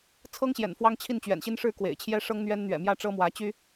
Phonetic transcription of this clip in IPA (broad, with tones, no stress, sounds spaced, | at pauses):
t͡sʰ ɤ˦ ŋ ɕ j ɛ̰˨˩ n f w ɑ˦ ŋ t͡ɕʰ i˥˨ n t͡ɕ ɥ ɛ̰˨˩ n ɕ i˦ n ʂ ɻ̩˥˨ k w ḛ˨˩ ɪ̯ t͡ɕʰ j ɛ˦ ʂ ɤ˦ ŋ n̪ ɥ ɛ˦ n n̪ ɥ ɛ̰˨˩ m j ä˥˨ ʈ͡ʂ ɤ˦ m w ä˨˦ t͡ɕ y˦